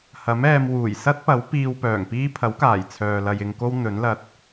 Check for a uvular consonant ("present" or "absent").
absent